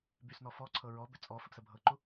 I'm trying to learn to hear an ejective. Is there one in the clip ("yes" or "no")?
yes